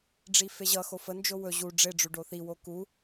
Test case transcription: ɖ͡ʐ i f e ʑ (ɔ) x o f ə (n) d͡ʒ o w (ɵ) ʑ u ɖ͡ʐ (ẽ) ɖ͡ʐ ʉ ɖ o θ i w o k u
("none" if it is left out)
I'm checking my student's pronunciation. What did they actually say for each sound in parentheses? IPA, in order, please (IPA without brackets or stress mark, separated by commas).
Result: ʌ, n, ɵ, e